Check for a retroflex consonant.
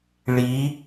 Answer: present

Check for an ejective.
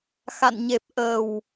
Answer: absent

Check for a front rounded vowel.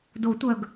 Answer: present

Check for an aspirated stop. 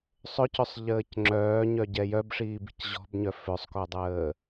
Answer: absent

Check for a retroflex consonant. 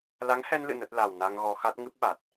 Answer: absent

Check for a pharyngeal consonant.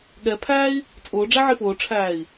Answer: present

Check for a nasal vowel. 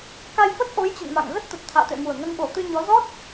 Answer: absent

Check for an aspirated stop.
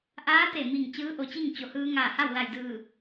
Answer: absent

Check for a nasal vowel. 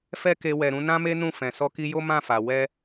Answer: present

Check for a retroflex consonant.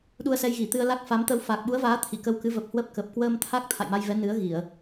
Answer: absent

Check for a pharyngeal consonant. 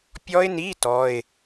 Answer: absent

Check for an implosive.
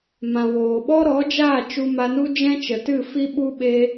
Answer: present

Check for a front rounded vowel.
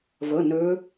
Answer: present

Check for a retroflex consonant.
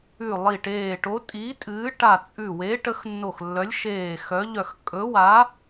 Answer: present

